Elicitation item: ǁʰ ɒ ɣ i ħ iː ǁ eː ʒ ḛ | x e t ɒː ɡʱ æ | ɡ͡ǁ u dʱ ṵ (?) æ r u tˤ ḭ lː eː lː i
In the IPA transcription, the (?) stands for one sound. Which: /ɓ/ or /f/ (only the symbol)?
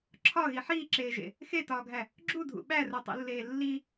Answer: ɓ